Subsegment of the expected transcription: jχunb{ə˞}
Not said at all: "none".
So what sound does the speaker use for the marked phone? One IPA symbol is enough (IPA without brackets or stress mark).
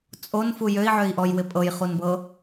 ɤ